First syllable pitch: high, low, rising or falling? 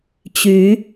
rising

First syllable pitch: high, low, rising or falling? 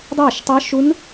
falling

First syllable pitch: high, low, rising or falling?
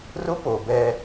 high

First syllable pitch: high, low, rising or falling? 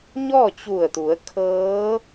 falling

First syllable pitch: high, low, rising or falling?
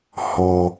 low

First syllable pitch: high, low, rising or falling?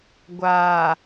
low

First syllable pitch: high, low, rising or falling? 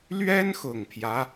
high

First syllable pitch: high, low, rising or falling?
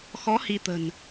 rising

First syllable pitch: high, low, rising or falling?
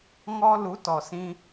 high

